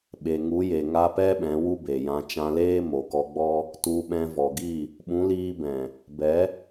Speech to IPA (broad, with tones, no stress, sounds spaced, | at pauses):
ɓ e˨ ŋ u˨˦ j e˨ ŋ a˧ p ɛ˦ ɓ ɛ̃˨˦ w u˦ b e˨ j ã˧ t͡ʃ ã˧ l eː˦ m o˨ k ɔ˧ ɡ͡b ɔ˦ | t u˧ ɓ ɛ̃˧ v ɔ˨ ɡ i˦˨ | ɓ ũ˨˦ l iː˧ b ɛ̃˨ | b ɛ˨˦